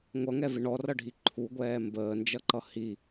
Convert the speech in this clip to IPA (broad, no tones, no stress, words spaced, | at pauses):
ŋʷʌŋɛvɪ ɳɔrʌɖʱi ǃʰuɡʷɛː mbəːnd͡ʒʌǃʌ hi